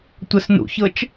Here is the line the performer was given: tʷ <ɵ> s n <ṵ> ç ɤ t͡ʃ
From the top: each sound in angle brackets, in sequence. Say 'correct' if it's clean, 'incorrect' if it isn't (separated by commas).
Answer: incorrect, correct